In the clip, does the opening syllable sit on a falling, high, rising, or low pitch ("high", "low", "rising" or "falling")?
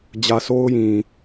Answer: low